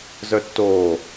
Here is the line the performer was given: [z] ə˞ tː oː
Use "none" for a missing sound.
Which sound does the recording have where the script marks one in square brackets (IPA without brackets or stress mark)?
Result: z